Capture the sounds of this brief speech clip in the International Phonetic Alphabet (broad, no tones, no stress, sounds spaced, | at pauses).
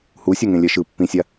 h u sʲ o ŋ ẽ lʲ ɛ ʃ ɯ pː ĩ sʲ a